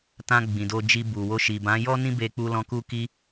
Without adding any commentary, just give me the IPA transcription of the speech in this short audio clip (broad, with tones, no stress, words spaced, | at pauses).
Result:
tã˧ ɡ͡bĩ˨do˧d͡ʒi˧ bu˨wo˧ ʃi˨bã˨˦jɔ˦nĩ˦ be˧k͡pu˧lɔ̃˧ ku˧ki˧